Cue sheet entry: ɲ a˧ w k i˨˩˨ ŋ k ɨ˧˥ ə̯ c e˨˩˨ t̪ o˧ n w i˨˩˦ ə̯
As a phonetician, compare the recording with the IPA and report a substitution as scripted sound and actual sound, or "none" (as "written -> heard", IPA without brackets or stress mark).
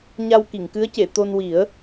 none